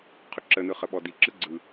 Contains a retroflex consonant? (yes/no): no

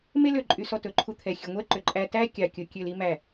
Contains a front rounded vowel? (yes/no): yes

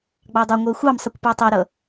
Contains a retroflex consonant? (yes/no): no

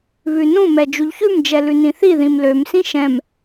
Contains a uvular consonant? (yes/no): no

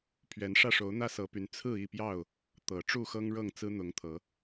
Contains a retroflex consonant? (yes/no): yes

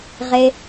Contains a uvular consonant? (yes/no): yes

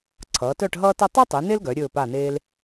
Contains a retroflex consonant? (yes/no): yes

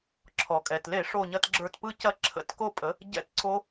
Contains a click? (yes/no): yes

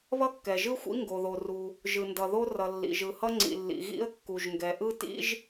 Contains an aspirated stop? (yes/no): no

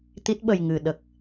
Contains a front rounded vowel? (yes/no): no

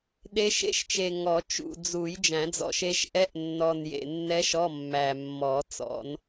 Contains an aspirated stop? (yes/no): no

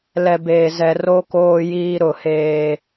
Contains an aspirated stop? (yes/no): no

